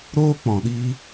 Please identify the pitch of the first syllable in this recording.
high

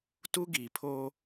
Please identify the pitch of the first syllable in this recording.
high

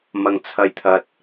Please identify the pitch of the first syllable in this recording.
low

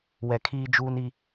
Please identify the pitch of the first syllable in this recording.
low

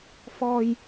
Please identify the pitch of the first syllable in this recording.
low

